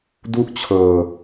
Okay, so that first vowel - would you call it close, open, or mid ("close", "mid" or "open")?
close